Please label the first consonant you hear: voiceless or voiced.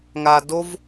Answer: voiced